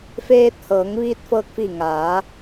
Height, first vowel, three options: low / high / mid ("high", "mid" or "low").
mid